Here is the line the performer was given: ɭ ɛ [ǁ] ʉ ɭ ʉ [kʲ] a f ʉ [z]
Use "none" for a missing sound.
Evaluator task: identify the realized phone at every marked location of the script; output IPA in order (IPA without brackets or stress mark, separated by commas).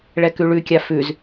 k, kʲ, z